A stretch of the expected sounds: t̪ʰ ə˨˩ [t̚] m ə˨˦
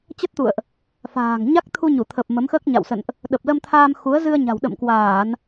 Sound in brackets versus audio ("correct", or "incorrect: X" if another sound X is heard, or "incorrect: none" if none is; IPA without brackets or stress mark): incorrect: p̚